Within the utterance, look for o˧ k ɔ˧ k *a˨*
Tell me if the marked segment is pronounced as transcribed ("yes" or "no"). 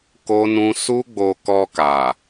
yes